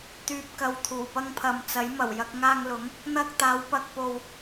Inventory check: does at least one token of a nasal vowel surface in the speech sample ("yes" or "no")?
no